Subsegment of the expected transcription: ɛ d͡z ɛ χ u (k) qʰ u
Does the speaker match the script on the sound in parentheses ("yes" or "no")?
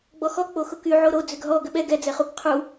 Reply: yes